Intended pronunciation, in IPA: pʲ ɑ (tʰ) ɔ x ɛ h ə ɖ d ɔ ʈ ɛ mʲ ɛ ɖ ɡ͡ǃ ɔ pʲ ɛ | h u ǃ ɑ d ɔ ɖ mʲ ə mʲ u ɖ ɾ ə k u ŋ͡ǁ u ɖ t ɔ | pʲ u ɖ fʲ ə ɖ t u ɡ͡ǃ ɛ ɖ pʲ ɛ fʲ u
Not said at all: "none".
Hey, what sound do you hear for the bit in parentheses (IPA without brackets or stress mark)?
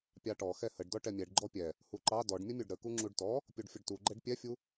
ʈ